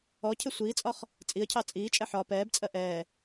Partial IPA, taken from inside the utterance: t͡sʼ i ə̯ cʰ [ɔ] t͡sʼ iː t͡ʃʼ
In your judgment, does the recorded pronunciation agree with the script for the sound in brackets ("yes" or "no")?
no